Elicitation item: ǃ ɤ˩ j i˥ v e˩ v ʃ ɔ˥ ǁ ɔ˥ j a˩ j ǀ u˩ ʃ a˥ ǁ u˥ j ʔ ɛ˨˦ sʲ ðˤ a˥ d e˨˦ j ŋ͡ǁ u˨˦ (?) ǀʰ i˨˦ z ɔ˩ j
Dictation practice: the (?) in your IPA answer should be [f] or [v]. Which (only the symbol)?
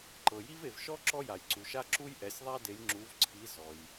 v